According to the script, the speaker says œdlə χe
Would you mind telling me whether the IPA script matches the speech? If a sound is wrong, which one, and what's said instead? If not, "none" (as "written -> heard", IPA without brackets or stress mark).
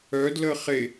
none